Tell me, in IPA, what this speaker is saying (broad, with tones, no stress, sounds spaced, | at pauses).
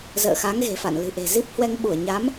z ə̰ː˧˨ x a˨˦ ŋ ɣ e̤˨˩ f a̰˧˨ n l ɨ̤˨˩ ʔ e̤˨˩ z i˦˥ p̚ h w ɛ˧ ŋ ɓ u˧˩ ə̯ ɲ a˨˦ m